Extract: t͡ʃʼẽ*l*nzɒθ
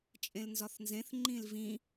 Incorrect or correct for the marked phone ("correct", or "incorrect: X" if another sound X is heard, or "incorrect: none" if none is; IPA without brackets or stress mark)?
correct